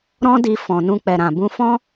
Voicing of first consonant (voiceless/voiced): voiced